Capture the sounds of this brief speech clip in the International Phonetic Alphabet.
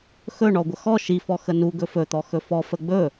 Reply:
x ɵ ɳ ɔ ɡʷ ə x ɔ ʃ i f ɔ x ə n u ɡ ɵ f ɵ t̪ ɔ x ɵ f ɔ f ə ɡ͡b ɵ

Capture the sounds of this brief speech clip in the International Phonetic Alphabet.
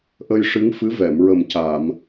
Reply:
ʔ ə˧ j ʂ ɨ˧˥ ŋ f ɨ˧˥ v ɛ˨˩˨ m ɹ ə˨˩ m c aː˨˩˨ m

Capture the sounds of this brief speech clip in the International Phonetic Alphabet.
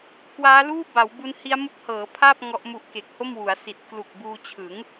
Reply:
k w aː˦˥ l uː˥˩ b a˩˦ w b u˦˥ n h i˦˥ a̯ m u˦˥ k̚ h ɤː˩˦ pʰ aː˥˩ p̚ ŋ ɔ˦˥ ʔ m u˦˥ ʔ k e˨˩ k̚ h o˥˩ m w u˩˦ a̯ s i˨˩ t̚ k l u˨˩ k̚ b uː˧ t͡ɕʰ ɯ˩˦ ŋ

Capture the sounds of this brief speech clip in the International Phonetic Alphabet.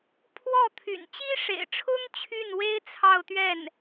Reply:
pʰ w ɔ˥˩ t̪ʰ y̰˨˩ n t͡ɕ i˥ ʂ ḛ˨˩ ɪ̯ ʈ͡ʂʰ ʊ˥ ŋ t͡ɕʰ y˥˩ n w e˥ ɪ̯ t͡sʰ ɑ˥˧ ʊ̯ t̪ ɥ ɛ˥˩ n

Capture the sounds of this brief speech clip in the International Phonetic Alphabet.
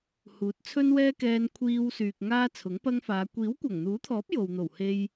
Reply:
h uː˨˥ t̚ t͡sʰ ɵ˥ n w ɛː˥ k ɛː˧ n kʷʰ iː˧ w s yː˨ k̚ ŋ aː˥ t͡sʰ ʊ˨˥ ŋ p ɐ˥ ŋ f aː˨˧ kʷ iː˨˥ w kʷ ɐ˨˩ ŋ n̪ uː˨˥ t̪ʰ ɔː˨˥ p̚ j o˨ w n̪ o˨˩ w h e˧ j

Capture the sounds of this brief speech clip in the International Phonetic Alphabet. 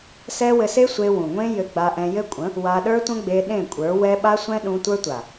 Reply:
s ɛ˦ w ɘ˧ s e˦ sʷ e˧ w ũ˨ ŋʷ ẽ˦ j ɘ˧ ɡ͡b a˧ ʔ ɛ̃˧ j ɘ˦ kʷʼ ə̃˨˦ | w a˧ ɗ ə˞˦ tʷ ə̃˦ ɡ͡b e˧ ɗ ẽ˦˨ kʷʼ ə˞˨˦ w ɛ˦ ɓ a˦ sʷ ɛ̃˦ ɗ ũ˧ tʷ ə˞˦ tʷ a˨

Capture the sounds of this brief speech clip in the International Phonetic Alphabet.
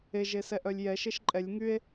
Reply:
e ʒ e s ɛ ʔ œ lʲ j ɛ ʃ e ʃ ǃʼ ɛ lʲ ŋ y e̯

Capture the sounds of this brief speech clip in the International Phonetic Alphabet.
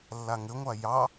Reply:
lː a ŋ ɘ ŋʷ a j ɑ

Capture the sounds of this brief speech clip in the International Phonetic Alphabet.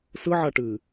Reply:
s ɯ ʕ a ʈ ɨ

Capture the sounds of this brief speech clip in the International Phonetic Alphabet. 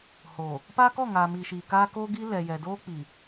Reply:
h oː˨ | p aː˦ k ɔ˦˨ ŋ aː˨ m iː˨ ʃ iː˨ k aː˦ k oː˦ ɡ i˦ l ɛ˨ j ɛ˨ d oː˦ k͡p i˨

